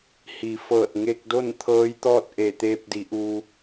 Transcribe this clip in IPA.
h i˩˧ f ɤː˧˩ t̚ ŋ e˧ k̚ d o˥˨ n t̪ʰ ɤː˧˥ j t̪ ɔː˥˨ t̚ ʔ eː˧˩ t̪ eː˧ p̚ d i˩˧ ʔ u˧

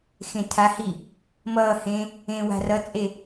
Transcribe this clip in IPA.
x ẽ tʰ a h i | m ʌː h ẽ | ẽ w a̤ r ʌ t͡sʼ e

